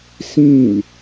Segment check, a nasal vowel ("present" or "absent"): present